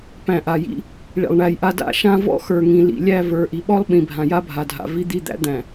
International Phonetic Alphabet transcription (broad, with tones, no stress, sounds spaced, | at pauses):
p æ̃˨ ʔ a˨ j ḭ˦ | ɭ ḭ˨ lˠ ɳ æ˨ j ʔ a˦ d a̰˦ ʃ ã˦ v ɔ̰˦ x ə˞˨ ŋ ĩ˨ l ḭ˨ lʲ æ˦˨ v ə˞˨ ʔ i˨ ɓ ɔ˦ lˠ ɓ ĩ˨ bʱ ã˨ j a˦ bʱ a˨ dʱ a̰˨ v i˦ d̪ i˦˨ d̪ æ̰˦ d̪ æ̃˨